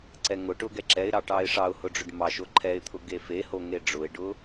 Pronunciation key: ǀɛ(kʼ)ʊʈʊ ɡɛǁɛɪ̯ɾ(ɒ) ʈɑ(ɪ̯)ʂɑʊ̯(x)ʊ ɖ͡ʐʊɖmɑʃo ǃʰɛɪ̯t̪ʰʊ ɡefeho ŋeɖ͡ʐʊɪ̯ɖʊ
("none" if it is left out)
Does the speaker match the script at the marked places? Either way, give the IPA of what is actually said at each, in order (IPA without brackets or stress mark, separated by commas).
ŋ, ɑ, ɪ̯, h